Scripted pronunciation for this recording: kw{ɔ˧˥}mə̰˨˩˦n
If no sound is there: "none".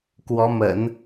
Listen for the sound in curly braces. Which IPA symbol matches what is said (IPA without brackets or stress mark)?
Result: ɔ˧˥